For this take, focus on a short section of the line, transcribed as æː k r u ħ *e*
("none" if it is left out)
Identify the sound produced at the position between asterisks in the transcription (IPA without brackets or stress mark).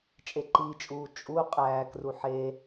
e